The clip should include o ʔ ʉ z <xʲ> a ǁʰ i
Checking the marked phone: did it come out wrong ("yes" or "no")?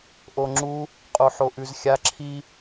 no